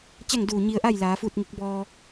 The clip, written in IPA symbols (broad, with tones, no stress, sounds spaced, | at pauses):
t͡ɕ a˥˨ ŋ d uː˧˩ ɲ i˧ ə̯ ʔ a˥˨ j l aː˩˧ f uː˥˨ t̚ ŋ i˧˥ k̚ b ɔː˧